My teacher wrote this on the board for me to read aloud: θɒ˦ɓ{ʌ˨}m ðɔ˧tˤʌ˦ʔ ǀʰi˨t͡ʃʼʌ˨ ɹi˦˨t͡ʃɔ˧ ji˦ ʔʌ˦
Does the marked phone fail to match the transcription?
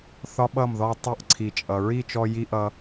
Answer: yes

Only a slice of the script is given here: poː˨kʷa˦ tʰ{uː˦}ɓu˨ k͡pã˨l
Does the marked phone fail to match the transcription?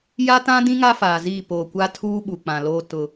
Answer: no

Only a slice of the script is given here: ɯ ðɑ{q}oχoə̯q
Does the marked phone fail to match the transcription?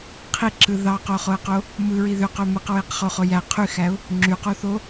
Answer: no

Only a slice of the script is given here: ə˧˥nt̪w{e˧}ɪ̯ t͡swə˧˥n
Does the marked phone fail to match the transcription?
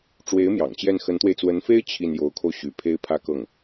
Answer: no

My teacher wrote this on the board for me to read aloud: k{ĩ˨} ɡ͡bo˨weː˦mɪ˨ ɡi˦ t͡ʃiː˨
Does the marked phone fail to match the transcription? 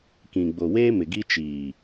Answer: no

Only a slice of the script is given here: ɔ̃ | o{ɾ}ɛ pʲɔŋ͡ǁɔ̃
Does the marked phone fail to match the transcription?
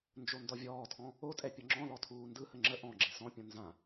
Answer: yes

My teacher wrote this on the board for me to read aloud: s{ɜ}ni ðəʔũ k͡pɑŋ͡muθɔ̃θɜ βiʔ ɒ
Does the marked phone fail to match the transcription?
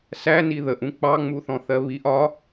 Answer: yes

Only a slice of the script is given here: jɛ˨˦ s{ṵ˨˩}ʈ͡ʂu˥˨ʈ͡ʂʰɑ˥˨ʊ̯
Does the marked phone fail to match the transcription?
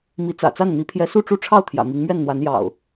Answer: yes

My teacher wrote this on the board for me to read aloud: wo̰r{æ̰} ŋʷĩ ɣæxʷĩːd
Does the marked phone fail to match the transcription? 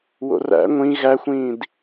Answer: no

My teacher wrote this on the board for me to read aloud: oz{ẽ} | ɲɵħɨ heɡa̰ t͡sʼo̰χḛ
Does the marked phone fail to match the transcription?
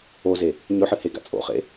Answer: yes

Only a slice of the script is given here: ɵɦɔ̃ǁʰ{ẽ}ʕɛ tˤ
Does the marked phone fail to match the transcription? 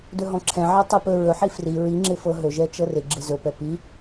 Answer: yes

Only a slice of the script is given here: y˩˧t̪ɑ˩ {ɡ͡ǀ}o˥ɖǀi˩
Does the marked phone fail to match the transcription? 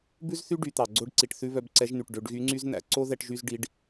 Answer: no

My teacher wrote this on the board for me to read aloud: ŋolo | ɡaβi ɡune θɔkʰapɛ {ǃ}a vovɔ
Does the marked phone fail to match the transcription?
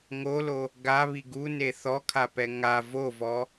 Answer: yes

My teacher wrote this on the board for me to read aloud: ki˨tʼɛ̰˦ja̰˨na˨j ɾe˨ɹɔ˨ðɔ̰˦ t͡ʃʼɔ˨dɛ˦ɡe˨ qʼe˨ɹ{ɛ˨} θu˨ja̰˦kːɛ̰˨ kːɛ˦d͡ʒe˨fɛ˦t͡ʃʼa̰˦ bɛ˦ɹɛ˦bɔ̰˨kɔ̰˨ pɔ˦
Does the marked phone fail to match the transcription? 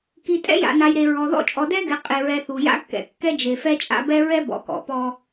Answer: no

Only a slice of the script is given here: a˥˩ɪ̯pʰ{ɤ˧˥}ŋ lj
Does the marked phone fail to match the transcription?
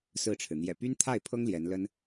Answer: yes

